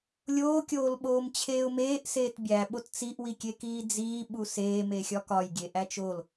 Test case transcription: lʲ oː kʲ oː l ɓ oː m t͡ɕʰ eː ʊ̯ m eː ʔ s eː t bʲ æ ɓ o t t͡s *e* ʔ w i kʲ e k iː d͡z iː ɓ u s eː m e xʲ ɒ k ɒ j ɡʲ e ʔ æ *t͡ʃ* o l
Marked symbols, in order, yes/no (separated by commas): no, yes